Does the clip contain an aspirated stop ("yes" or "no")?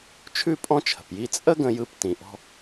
yes